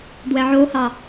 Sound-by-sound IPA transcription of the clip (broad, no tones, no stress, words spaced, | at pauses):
dwɛʕohɑ